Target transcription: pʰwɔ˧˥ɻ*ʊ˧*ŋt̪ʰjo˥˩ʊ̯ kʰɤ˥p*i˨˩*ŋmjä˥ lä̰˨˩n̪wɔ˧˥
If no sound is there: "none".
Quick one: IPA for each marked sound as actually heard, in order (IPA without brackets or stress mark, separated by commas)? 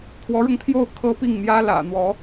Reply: ʊ˧, i˥˩